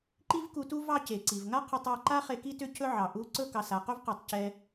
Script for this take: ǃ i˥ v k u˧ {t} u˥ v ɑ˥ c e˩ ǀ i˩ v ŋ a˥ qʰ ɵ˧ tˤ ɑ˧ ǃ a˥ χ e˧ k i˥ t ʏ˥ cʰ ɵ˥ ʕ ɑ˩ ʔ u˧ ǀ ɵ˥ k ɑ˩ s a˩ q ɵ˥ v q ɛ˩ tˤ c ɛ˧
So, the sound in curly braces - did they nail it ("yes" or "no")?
yes